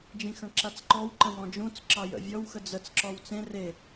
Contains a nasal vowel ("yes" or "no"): yes